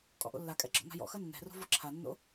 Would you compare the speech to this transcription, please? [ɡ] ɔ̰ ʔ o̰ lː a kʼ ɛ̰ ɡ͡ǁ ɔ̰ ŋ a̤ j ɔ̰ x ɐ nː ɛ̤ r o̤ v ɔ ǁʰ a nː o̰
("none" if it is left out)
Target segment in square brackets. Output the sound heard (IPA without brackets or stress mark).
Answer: kʼ